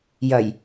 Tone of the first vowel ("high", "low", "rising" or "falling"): low